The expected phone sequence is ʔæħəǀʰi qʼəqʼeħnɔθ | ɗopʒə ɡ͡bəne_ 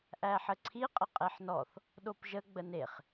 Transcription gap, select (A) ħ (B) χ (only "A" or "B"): B